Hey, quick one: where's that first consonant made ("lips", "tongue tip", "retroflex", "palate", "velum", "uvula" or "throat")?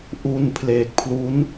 throat